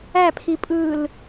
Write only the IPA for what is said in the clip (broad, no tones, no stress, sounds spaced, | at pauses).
æ pʰ i pʼ ɯː l